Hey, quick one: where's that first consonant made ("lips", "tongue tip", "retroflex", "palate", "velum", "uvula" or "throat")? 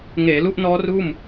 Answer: velum